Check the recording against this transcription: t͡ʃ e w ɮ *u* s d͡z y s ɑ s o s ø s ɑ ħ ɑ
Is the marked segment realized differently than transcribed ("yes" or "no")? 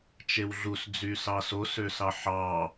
no